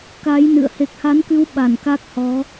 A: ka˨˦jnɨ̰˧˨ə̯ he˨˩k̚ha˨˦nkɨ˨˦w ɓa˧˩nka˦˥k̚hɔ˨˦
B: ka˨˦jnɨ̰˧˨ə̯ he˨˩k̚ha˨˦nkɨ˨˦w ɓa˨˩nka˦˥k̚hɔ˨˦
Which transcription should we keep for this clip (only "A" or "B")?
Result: A